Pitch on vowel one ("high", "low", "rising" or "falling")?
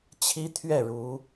high